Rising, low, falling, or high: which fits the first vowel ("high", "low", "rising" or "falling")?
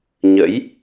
rising